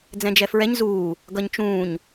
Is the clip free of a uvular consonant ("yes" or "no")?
yes